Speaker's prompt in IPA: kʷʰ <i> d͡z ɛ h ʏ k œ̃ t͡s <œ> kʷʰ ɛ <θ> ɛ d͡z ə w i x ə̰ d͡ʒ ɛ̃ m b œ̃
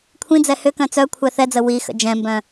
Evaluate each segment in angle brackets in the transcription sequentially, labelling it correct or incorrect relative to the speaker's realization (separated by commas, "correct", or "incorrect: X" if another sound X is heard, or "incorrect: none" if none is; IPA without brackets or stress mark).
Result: incorrect: ĩ, correct, correct